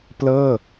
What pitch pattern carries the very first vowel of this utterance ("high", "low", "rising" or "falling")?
falling